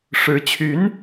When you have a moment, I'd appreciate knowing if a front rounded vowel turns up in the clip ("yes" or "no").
yes